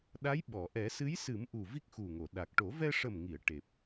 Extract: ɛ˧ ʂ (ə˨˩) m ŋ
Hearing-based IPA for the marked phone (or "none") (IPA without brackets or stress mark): ə˨˩